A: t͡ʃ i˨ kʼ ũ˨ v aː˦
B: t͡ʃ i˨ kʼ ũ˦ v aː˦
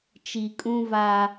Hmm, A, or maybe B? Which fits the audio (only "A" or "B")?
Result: B